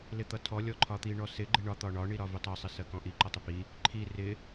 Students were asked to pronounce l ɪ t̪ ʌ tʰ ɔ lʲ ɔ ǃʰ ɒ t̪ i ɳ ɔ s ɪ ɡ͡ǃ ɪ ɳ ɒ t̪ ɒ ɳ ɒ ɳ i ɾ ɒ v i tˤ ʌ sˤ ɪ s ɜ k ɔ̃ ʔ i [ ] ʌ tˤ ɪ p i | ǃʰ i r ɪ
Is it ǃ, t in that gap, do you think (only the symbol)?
ǃ